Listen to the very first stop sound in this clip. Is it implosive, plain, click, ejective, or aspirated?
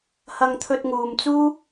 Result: aspirated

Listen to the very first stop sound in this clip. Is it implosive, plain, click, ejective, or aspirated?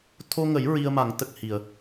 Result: aspirated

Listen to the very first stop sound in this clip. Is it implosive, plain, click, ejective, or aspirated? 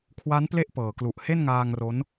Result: aspirated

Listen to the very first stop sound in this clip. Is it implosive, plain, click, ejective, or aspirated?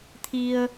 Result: aspirated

